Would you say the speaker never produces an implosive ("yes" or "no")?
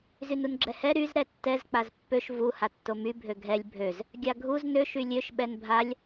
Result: no